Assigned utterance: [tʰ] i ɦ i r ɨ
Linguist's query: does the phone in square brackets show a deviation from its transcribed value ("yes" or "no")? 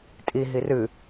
yes